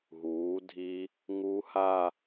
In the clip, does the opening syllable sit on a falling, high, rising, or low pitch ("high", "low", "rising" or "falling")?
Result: rising